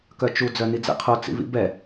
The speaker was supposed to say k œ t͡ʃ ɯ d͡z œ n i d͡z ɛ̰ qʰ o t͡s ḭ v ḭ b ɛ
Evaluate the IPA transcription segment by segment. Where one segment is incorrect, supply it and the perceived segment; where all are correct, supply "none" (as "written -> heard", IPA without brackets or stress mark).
ɯ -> u